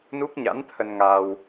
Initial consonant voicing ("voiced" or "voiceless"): voiced